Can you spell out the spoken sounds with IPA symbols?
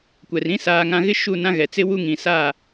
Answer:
kʷ ɛ˨ r ĩ˦ s aː˨ ŋ ã˨ ɣ ɪ˦ ʃ u˦˨ n ã˦ ɣ ɛ˨ t͡s ɪ˦ w u˦ ŋ ĩ˨ s a˦˨

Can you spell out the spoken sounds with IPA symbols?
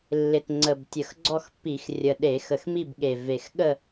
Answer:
lː ɪ˨˩ t ŋ͡ǀ ə˨˩ b tʲ ə˨˩ x ɡ͡ǀ ɔ˥˨ x pː i˧˩˧ x rʲ ə˨˩ ɗ e˧˩˧ x ə˨˩ x m i˥˨ b ɠ e˨˩ v e˨˩ x ɠ ə˥˨

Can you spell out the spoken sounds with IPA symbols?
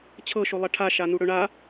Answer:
t͡ɕʰ ɤ ʃ o lˠ ɐ ʈʰ a ʃ a n u ɽ ɵ ɳ a

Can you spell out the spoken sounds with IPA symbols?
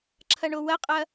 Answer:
ǁʰ ɐ ɳ o w ɐ qʼ ɐ

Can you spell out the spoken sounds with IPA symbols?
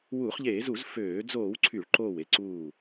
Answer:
w uː˧˩˧ χ ʎ eː˧˩˧ z u˧˩˧ z f øː˧˩˧ d͡z oː˧˩˧ w ǀʰ y˧˩˧ ɭ ǃ oː˧˩ w e˧˩ ǀ uː˧˩

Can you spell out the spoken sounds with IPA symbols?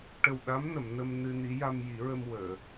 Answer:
ʈ ə˨˩ w ɗ a˧˥ m n ə˨˩˨ m n ə˧ m n ɨ˧ n i˧˥ j a˧ m j i˨˩˦ ɹ ə˧ m w əː˨˩˨

